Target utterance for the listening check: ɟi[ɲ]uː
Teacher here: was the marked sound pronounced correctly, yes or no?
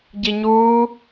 yes